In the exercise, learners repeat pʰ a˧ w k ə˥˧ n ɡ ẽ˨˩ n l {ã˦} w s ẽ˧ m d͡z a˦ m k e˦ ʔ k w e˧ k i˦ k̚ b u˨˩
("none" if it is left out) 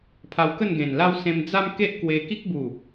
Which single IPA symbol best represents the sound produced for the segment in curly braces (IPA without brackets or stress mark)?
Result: a˦